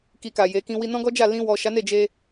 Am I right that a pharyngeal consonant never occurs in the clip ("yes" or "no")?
yes